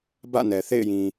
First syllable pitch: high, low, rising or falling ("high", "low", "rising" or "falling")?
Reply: falling